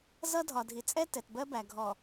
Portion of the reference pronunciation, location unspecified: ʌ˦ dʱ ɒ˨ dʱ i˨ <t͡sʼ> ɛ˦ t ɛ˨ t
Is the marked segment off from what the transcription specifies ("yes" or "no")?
no